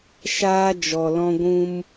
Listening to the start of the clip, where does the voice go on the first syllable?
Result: high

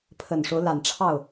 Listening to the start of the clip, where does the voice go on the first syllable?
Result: low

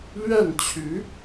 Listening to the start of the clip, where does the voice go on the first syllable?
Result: falling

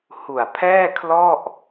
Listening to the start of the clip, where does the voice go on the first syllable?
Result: low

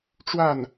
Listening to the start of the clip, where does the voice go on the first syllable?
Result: falling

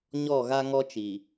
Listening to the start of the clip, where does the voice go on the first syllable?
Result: falling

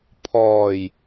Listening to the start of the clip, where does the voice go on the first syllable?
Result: low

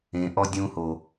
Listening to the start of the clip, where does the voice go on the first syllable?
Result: low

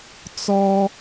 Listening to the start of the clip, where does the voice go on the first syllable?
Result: high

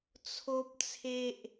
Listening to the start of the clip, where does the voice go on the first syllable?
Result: high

